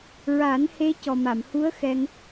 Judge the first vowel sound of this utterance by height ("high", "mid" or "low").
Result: low